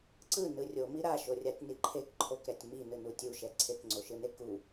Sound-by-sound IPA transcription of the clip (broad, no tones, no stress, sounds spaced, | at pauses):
ǀ ɯ n ɯ rʲ o m i ɾ a ʃ o rʲ a tʲ n i ǃʰ e k ǃʰ o k ɾ ɛ tʲ m i n ɯ n u tʲ u ʃ ɛ ǀʰ e k ŋ͡ǀ o ʃ ɯ n e k u